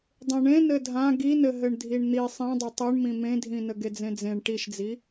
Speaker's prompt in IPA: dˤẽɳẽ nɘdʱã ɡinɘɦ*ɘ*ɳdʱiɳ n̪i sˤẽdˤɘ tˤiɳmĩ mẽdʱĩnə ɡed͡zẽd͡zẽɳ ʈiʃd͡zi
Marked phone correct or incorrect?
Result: correct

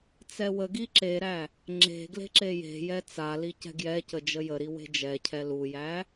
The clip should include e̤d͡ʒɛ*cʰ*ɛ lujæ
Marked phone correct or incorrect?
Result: correct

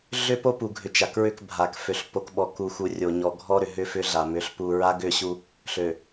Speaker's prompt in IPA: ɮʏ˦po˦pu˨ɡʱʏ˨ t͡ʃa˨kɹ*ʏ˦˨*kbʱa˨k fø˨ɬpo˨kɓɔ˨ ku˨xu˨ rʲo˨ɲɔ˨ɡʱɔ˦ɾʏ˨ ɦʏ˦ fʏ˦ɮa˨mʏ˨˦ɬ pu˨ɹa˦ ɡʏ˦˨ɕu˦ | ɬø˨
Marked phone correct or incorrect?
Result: correct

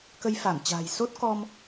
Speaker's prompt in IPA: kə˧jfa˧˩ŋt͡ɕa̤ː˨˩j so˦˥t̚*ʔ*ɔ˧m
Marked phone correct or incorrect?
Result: incorrect: k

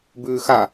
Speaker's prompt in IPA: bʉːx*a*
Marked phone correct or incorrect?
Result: correct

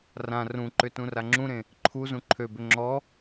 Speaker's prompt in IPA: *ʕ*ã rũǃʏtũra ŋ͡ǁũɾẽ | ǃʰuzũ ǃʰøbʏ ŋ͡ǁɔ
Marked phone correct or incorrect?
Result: incorrect: r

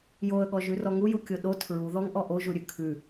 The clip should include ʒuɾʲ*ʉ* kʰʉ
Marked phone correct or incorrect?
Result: correct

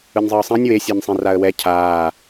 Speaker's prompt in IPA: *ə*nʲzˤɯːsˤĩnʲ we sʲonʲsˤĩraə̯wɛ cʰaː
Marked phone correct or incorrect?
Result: incorrect: ɯ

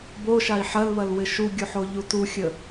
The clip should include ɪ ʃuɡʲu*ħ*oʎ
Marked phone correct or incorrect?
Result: correct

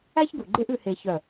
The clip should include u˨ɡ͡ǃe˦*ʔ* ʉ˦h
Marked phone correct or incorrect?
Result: correct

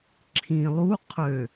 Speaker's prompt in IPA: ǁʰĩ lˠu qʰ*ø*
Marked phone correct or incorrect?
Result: correct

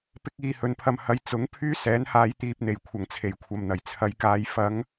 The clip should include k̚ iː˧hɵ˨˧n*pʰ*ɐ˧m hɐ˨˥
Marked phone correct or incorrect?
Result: correct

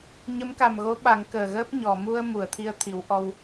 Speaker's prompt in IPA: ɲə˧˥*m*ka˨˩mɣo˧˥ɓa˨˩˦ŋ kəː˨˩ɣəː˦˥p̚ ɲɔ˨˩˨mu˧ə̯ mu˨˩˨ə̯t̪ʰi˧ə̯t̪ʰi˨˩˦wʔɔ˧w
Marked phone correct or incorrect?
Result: correct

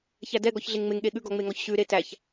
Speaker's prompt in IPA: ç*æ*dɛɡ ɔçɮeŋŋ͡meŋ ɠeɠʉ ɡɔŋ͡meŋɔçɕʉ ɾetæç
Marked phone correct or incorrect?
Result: correct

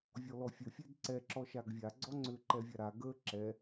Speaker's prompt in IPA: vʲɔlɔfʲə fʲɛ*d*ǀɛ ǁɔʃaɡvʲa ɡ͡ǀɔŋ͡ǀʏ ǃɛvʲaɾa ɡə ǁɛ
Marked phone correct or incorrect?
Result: correct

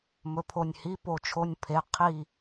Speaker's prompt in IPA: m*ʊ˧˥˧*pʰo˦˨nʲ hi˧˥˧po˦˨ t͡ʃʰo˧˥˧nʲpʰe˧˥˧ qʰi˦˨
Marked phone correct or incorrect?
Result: incorrect: ɵ˧˥˧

